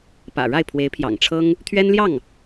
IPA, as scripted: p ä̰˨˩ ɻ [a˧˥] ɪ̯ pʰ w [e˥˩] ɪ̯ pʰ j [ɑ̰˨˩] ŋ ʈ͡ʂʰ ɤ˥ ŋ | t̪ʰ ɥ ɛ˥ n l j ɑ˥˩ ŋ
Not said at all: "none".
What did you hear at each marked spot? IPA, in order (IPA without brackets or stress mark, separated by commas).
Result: a˥˩, e˧˥, ɑ̰˨˩